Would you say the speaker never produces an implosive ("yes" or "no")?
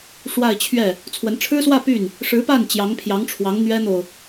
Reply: yes